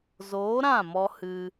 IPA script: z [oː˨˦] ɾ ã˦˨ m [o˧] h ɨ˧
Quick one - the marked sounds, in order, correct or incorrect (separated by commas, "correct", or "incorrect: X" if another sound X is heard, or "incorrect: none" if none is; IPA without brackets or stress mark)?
correct, incorrect: ɔ˧